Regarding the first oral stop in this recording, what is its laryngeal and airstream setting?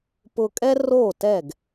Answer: plain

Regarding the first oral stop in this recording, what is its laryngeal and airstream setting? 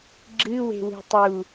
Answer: click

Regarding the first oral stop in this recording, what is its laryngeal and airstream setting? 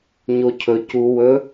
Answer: aspirated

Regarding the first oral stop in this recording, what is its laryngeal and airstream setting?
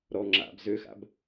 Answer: click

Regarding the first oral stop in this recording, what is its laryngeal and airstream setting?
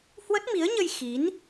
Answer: plain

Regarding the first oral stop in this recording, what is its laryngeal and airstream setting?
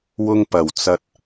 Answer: plain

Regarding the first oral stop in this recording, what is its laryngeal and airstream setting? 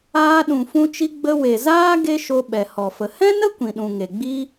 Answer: implosive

